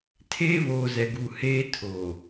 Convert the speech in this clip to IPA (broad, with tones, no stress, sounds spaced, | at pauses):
tʰ eː˦ β oː˨ z ɛ˨ ɡ u˨ h eː˦ tʰ oː˨